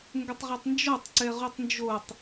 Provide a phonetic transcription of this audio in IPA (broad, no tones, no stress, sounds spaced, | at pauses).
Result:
ŋ ɡ ə tˤ ʁ ɛ tˤ n d͡ʒ ɔ tˤ ǀ ɛ ʁ u tˤ n d͡ʒ o tˤ